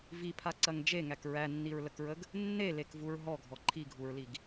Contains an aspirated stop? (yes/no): yes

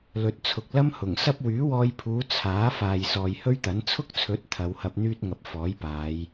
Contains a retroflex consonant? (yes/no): no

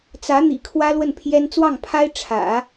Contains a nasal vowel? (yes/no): no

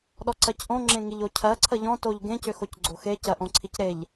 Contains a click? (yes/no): yes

